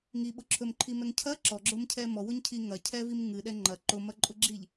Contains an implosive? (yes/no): yes